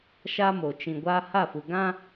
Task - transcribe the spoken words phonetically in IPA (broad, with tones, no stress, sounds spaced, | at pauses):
ʃ a˦ m o˨ t͡ʃ ĩ˨ ɡʷ aː˦ h a˦˨ f u˨ ɡ ã˦